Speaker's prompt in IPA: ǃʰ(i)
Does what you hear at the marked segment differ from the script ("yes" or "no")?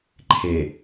yes